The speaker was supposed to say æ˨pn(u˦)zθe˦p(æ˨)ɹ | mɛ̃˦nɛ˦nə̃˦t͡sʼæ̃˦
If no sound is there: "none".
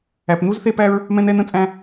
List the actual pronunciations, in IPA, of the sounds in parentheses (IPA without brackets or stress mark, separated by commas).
u˦, æ˦